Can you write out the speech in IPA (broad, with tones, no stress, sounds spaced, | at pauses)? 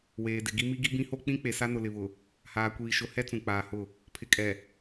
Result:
w eː˨ d ɪ˨ ɡ i˦ m i˦ ɡ i˦ b ĩ˦ h o˦ k͡p ĩ˦ k͡p e˨ s a˦ n ʊ˨ l ɪ˨ β ʊ˨ | h aː˨ kʷ iː˨ ʃ ʊ˨ h ɛ˦ t͡s ũ˨ k͡p aː˨ h ʊ˦˨ | pʰ ɪ˨ kʼ ɛ˨